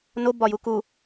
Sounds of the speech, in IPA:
no bɒjuku

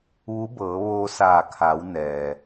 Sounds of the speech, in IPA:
ʋu˧˥bɤː˩˧ʋoː˧saː˧˩ kʰa˩˧w nɛː˩

